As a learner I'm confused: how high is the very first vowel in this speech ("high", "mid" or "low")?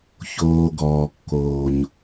mid